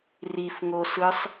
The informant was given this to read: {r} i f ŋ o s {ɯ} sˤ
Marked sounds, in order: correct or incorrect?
correct, correct

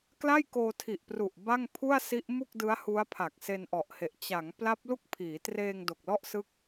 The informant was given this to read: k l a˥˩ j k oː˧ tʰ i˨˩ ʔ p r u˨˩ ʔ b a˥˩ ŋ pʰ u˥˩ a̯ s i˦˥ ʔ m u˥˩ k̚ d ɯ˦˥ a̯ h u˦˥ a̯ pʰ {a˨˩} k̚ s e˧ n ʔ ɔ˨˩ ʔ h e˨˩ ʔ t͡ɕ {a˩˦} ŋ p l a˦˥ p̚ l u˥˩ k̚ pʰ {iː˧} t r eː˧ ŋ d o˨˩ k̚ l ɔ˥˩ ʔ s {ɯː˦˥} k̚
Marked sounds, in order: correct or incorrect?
correct, correct, incorrect: iː˩˦, incorrect: ɯ˦˥

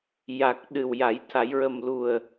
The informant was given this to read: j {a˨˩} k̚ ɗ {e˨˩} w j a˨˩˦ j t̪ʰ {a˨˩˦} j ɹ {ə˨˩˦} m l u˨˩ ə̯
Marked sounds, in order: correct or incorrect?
correct, incorrect: ɨ˨˩, correct, incorrect: ə˨˩

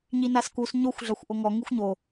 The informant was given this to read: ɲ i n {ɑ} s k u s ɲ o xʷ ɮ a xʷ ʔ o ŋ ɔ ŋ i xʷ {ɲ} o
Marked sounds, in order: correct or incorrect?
incorrect: a, correct

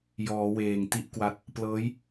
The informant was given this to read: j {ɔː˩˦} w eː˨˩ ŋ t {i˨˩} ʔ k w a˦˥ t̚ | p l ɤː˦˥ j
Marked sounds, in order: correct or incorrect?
correct, incorrect: i˦˥

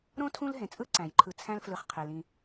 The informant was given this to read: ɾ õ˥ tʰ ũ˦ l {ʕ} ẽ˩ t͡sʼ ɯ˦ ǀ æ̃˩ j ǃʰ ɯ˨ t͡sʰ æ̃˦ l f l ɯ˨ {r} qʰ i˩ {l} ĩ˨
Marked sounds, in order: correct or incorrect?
incorrect: ɦ, incorrect: χ, correct

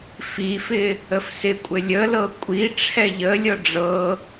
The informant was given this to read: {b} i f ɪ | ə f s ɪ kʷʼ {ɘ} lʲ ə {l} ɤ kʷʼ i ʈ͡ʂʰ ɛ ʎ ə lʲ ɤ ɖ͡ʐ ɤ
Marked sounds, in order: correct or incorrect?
incorrect: f, correct, correct

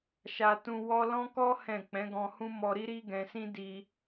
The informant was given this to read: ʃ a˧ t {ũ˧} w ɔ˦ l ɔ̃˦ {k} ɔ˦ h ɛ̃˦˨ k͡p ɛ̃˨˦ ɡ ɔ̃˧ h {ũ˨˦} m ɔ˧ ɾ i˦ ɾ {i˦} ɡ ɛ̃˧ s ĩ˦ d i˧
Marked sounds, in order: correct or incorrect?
correct, correct, incorrect: ũ˦, correct

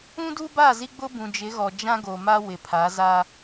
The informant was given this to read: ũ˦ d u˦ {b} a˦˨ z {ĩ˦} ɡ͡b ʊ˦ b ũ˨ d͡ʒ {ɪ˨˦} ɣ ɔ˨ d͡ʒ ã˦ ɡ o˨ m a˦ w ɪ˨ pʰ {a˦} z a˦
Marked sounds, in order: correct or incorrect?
correct, incorrect: i˦, correct, incorrect: a˨˦

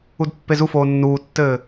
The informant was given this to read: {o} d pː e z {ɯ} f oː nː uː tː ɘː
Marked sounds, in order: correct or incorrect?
incorrect: u, incorrect: u

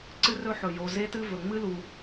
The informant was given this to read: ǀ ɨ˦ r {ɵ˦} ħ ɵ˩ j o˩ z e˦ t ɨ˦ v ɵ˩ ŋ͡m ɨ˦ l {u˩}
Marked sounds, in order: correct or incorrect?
correct, correct

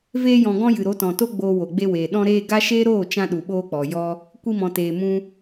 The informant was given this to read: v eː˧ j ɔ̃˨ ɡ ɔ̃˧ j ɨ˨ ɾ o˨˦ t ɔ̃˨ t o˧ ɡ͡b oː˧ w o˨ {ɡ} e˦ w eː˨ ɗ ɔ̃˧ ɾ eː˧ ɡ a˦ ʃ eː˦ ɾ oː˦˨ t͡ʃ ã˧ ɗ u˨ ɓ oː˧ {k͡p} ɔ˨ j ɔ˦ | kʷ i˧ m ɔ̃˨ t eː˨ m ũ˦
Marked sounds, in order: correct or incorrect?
incorrect: ɡ͡b, correct

